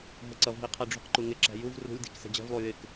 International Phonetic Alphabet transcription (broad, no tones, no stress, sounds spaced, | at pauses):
ɦ ə ǀ ʌ v ɦ i qʰ ɛ ɖ͡ʐ ṳ q ǃ u ŋ ɪ ǁ æ̤ j u v r ṳ lʲ d i̤ k s ɛ̤ d͡ʑ ɛ̤ v lˠ u j ɪ k